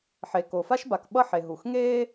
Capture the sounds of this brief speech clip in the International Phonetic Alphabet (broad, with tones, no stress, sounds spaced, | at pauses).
ħ e˩ k o˩ f a˥ ʃ b a˩ k ɓ ʌ˥ ħ e˩ ɦ u˩ x ŋ eː˥